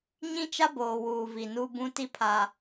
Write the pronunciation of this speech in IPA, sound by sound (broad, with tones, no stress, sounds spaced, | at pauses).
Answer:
ɲ ĩ˦ t͡ʃ a˦ b oː˨ w uː˨ v i˨ n u˦ b ũ˦ t i˦ pʰ aː˨